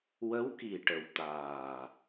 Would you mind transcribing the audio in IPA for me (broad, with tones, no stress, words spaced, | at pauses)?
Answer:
wə˧˥wki˨˩ʈə˨˩w t̪aː˨˩